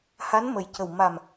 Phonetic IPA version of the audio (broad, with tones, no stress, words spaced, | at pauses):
ha˧˥nmə˨˩j cə˨˩w ma˨˩m